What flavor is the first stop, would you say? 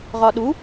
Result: implosive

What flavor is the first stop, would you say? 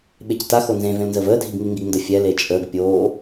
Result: implosive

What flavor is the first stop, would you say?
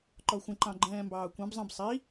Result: click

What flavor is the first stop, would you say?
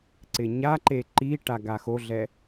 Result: click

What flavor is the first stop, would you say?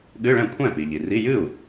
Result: implosive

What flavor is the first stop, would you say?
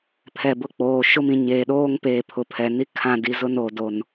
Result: aspirated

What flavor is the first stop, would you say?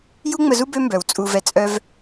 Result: plain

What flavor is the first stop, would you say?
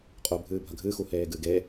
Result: ejective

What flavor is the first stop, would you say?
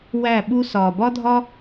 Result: implosive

